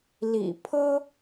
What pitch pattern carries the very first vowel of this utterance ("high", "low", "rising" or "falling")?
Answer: low